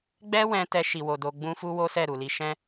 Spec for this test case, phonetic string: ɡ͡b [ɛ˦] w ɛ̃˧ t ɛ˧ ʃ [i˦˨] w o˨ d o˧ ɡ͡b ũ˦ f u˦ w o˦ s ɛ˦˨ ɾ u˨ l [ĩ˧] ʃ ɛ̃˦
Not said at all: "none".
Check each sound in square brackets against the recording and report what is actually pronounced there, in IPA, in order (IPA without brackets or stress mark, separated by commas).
ɛ˦, i˨, i˧